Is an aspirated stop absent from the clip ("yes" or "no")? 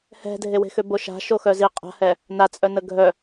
yes